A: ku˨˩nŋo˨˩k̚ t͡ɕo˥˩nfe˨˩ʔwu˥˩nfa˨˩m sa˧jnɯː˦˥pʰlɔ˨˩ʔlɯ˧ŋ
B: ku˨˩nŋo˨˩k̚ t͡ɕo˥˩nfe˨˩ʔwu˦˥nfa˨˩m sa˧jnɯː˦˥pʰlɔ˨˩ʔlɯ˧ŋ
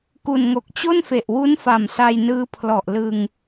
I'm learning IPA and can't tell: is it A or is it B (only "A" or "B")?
B